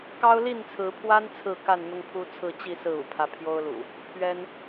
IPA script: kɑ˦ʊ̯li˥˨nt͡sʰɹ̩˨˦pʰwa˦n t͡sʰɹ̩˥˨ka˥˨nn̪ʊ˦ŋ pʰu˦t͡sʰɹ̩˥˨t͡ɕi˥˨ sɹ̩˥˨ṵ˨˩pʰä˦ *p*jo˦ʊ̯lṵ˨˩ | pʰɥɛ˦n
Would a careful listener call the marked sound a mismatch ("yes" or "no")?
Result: yes